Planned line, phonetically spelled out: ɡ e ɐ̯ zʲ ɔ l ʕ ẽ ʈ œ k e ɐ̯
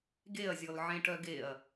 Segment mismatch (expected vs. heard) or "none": k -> ɡ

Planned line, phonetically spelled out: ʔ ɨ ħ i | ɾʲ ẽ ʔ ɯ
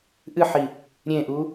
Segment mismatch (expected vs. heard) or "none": ɯ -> u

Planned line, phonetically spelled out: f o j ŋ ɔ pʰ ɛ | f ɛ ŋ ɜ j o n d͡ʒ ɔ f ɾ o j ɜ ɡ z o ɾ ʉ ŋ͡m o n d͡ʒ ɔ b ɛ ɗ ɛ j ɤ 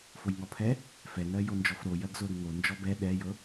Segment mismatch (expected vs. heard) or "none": ŋ͡m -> ŋ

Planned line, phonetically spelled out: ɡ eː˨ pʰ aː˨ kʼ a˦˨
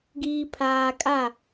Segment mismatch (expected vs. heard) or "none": eː˨ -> iː˨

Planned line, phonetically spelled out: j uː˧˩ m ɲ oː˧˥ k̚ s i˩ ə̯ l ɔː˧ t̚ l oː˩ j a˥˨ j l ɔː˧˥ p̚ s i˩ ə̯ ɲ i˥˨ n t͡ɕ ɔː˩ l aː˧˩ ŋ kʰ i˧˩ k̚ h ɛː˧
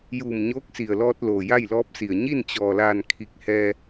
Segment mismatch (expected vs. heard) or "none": ŋ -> n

